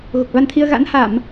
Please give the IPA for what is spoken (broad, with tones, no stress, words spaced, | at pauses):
ɣo˨˩k̚ va˧nt̪ʰi˧ə̯ ɣa̰˧˥nha˧˩˨m